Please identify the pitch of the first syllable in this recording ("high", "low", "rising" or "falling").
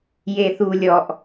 low